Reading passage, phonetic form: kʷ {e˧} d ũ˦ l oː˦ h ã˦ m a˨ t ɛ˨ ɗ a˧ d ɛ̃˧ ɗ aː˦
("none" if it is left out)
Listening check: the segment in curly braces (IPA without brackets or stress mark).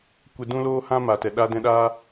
e˧